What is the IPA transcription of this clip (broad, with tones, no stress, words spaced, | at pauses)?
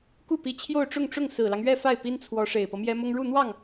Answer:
ku˥˩pi˧˥ t͡ɕʰjo˥˧ʊ̯ʈ͡ʂʊ˥˧ŋʈ͡ʂʊ˥˩ŋ sɹ̩˨˩lɑ˦ŋɥɛ˥˧ fa˥˩ɪ̯pi˥nt͡sʰwɔ˧˥ ʂe˨˩ɪ̯pɤ˦mjɛ˥mʊ˥ŋ ɻu˥˧n̪wɑ˥˩ŋ